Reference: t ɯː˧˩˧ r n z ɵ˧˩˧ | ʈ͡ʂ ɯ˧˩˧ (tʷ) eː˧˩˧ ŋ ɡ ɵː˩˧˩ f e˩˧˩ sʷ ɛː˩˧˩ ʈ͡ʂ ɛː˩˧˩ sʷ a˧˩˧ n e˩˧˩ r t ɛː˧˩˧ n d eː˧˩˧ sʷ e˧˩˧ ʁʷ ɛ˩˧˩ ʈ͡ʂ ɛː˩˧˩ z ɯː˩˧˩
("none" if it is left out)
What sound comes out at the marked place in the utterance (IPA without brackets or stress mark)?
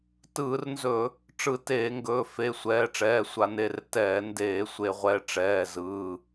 t